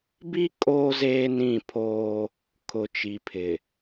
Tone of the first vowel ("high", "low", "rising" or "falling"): high